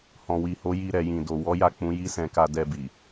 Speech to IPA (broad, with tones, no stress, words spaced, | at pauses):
hɔ̃˨wi˨ho˨˦ ji˧ɾɛ˨jĩ˨ do˨ wɔ˨˦ja˦˨ k͡pũ˨˦ji˦sɛ̃˧ka˧ dɛ˧bi˨